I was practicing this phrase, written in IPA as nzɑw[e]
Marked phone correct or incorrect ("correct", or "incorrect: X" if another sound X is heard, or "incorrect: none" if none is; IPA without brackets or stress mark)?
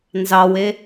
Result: correct